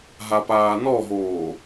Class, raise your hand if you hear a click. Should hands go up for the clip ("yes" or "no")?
no